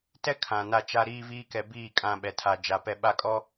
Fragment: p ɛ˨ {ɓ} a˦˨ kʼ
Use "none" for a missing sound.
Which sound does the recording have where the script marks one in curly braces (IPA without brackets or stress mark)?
ɓ